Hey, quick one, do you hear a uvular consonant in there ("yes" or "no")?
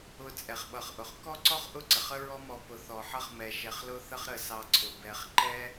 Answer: yes